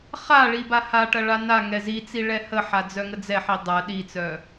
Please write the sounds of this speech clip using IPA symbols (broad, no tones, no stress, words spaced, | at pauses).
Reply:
χaɭi bahaʈɐ ɭanaŋɛ zit͡si ɭɛhəħa d͡zœŋəd͡zɛħi dˤɐ ɗit͡sœ